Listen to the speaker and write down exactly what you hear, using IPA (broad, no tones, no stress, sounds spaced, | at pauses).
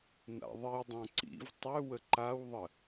n a̰ ðˤ i dˤ ã ǀ ḭ v tˤ ø w ə ǃ a w ðˤ ə